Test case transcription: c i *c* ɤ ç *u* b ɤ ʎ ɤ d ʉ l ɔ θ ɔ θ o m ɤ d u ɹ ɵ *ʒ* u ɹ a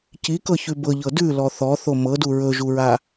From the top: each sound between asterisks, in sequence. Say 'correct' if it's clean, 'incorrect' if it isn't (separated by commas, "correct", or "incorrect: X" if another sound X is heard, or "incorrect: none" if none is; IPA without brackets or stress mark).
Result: incorrect: k, incorrect: ʉ, correct